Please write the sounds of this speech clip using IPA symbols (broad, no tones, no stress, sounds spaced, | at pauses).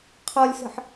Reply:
qʰ ɔ lʲ s ə̤ ħ